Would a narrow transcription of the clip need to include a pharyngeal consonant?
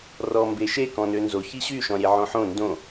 yes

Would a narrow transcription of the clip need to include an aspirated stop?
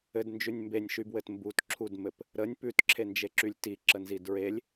yes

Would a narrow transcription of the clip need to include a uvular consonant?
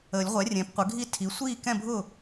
yes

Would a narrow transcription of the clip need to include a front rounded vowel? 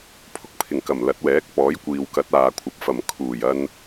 no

